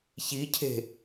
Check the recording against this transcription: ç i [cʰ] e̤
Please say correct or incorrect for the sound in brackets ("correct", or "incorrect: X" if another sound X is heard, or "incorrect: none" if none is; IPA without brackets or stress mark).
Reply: correct